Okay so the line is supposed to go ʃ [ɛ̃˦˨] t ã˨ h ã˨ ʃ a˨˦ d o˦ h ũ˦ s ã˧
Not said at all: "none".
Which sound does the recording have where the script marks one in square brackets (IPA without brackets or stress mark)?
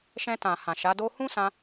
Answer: ɛ̃˧